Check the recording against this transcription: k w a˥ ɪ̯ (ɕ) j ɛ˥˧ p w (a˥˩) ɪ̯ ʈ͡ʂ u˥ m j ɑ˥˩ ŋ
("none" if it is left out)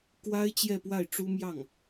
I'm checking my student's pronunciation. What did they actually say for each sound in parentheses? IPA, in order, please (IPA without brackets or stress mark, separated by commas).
t͡ɕ, a˥˩